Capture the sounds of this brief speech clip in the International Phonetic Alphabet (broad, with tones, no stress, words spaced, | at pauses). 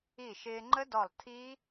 i˧˩ʃɪː˧ŋ͡ǃə˦˥dɔ˧˩lˠ tʰi˦˥